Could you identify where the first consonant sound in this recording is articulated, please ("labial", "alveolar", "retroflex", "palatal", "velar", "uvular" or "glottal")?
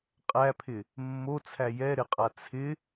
uvular